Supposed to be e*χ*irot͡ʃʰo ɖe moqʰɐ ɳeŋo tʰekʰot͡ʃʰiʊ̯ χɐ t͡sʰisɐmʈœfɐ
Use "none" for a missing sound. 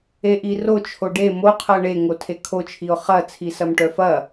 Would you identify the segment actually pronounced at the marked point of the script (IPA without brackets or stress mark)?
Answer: ʔ